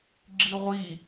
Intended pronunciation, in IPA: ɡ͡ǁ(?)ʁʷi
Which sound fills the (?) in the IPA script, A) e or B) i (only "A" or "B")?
B